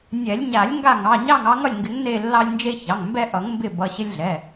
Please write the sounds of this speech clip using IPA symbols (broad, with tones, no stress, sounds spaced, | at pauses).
nʲ ɛ˨˩˦ lʲ ɲ a˨˩˦ lʲ ŋ ɡ a˦˨ ŋ ɑ˩˧˩ ɲ ɑ˦˨ ŋ ɑ˨˦ ŋ ʌ˦˨ lʲ ŋ ɡ ɪ˨˦ ŋ n e˦˨ lː ɑ˦ lʲ n d͡ʒ e˦ ç ɑ˩˧˩ ŋ m b ɛ˦ ʔ ʌ˨˩˦ ŋ m b ɪ˦˨ b ʌ˩˧˩ ɕ ɪ˦ lʲ ɮ ɛ˩˧˩